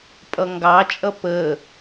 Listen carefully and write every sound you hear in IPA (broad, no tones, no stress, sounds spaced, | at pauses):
pʼ ʌ ŋ ɡ ɑ t͡ʃʼ ʌ p əː